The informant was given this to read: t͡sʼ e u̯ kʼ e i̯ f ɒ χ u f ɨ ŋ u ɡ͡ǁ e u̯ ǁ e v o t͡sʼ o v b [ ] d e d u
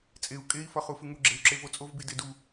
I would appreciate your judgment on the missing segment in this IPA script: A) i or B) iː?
A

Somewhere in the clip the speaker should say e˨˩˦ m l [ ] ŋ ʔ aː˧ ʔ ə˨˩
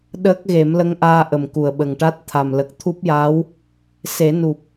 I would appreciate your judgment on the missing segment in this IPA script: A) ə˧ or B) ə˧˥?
B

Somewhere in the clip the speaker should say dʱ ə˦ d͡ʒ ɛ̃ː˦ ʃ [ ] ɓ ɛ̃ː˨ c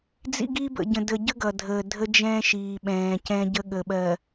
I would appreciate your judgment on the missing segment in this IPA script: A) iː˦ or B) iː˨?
B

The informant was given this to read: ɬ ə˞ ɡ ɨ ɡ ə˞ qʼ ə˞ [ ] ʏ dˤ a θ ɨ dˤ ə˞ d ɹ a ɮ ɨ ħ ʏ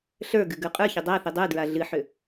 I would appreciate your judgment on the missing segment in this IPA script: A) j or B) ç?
B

